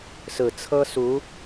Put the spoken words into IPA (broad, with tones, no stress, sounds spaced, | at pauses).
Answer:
s ɹ̩˨˩ t͡sʰ ɤ˥ s u˧˥